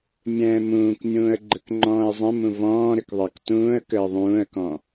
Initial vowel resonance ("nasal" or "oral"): nasal